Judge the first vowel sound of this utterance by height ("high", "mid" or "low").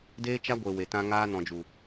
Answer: mid